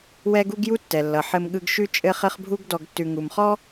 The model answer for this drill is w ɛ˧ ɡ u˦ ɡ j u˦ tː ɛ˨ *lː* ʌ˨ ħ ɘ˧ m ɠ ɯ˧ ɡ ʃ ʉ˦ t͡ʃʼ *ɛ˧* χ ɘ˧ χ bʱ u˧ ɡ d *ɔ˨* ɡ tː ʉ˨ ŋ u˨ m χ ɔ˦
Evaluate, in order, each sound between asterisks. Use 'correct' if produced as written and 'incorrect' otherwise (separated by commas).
correct, incorrect, correct